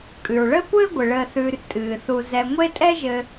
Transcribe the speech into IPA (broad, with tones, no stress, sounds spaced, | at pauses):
kʼ ʉ˩ ɹ ɭ əː˥ kʷ ɘː˥ ɡʷ ɨ˩ ɭ əː˨ θ ʉː˨ r tʼ ɨː˩ θ u˨ z ɛ˨ ŋʷ e˦ tʼ ɛ˦ ʒ ɘ˨